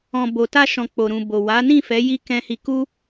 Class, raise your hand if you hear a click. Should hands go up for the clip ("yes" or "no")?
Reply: no